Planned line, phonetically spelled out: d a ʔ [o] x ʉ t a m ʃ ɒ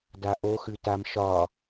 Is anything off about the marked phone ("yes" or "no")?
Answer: no